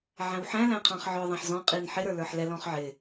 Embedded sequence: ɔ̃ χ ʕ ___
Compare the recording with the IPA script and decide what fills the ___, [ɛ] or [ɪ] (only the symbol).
ɪ